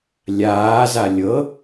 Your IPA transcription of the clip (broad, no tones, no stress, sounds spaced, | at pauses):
lʲ aː z a lʲ ɤ